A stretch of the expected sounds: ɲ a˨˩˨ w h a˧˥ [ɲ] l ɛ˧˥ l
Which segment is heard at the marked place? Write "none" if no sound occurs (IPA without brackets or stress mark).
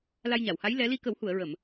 j